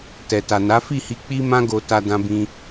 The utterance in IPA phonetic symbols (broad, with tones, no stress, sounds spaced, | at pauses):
t ɛ˨ t a˨ n a˨˦ f i˦˨ h i˧ k͡p i˦ m ã˦ ɡ o˧ t a˧ d ã˧ b ĩ˧